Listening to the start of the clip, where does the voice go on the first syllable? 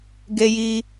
high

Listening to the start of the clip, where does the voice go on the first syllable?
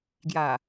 low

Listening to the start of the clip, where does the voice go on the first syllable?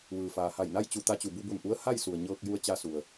low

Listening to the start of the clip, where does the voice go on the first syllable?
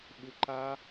low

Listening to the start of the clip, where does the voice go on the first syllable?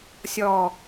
low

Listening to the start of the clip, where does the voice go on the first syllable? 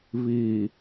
low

